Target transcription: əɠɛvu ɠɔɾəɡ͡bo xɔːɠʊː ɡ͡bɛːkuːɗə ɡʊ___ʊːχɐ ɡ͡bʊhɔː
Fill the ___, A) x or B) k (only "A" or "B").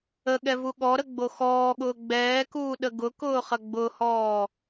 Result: B